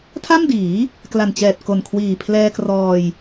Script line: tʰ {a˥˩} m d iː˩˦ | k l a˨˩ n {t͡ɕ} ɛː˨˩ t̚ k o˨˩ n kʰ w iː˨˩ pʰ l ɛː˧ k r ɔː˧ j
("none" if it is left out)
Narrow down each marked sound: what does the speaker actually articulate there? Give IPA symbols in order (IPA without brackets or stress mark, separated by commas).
a˥˩, t͡ɕ